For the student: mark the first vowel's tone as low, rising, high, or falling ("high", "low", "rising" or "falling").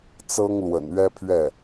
high